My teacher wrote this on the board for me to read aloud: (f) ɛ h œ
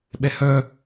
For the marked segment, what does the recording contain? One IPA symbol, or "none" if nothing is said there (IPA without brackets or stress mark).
ɓ